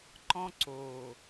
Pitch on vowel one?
high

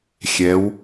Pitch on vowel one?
rising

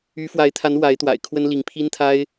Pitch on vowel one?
rising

